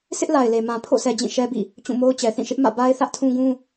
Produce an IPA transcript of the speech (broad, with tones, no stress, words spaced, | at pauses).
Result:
sʰɪ˦ʔla˨ɪ̯le˨ mã˨pʰo̰˦˨sɛ˨ d͡ʑĩ˦˨ʃɛ˦bḭ˦˨ | t͡ɕũ˦˨mo˦ʊ̯t͡ɕɛ˨ θĩ˦˨ʃɪ˦ʔ mä̰˦˨ ba˦ɪ̯θä˦ʔtʰũ˦ɡũ˦